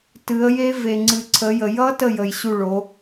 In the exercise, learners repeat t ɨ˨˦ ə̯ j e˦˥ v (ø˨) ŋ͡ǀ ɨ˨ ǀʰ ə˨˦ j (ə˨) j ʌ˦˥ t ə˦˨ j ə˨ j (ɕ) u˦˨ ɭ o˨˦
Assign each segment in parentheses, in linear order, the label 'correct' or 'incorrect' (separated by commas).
incorrect, correct, correct